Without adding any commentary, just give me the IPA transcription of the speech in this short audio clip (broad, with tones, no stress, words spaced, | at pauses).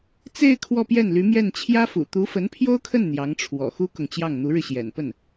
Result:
t͡se˥˧ɪ̯ kʰwɔ˥˧pjɛ˥˩nly˧˥mjɛ˥˩n t͡ɕʰjä˥fṵ˨˩ t̪u˧˥fə˧˥npʰjo˥ʊ̯kʰə˥˩n n̪jɑ˧˥ŋʈ͡ʂʰwɔ̰˨˩ xu˥kʊ˨ŋt͡ɕjɑ˥˩ŋ n̪u˧˥ɻɻ̩˧ɕjɛ̰˨˩npə˥˩n